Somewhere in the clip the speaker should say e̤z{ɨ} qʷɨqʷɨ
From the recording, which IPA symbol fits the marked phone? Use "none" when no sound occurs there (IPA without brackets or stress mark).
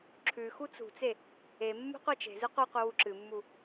ɨ